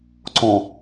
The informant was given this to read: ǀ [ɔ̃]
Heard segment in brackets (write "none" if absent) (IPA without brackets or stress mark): ɔ̃